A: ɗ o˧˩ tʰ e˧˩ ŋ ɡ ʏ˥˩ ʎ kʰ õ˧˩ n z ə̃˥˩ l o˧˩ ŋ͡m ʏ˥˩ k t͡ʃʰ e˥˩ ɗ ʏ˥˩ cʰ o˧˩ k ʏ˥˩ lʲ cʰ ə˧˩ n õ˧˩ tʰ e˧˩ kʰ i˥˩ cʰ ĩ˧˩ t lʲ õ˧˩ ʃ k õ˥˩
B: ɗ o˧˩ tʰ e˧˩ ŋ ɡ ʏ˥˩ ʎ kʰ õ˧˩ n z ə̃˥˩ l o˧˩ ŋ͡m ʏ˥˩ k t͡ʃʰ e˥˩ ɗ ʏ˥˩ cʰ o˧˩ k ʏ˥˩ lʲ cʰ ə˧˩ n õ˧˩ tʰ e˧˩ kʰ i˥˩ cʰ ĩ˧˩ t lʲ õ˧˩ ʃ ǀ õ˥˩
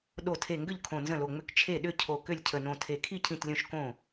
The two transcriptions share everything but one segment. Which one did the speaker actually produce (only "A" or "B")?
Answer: A